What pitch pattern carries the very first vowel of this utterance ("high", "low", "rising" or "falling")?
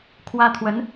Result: high